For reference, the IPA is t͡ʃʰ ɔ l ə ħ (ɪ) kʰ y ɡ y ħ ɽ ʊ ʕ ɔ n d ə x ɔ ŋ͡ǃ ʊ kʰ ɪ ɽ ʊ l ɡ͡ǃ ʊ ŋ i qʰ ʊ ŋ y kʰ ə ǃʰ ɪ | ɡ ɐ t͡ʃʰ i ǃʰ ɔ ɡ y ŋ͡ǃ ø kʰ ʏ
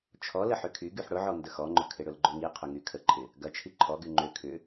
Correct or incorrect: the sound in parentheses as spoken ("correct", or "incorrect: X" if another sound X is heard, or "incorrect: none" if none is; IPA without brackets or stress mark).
incorrect: ʏ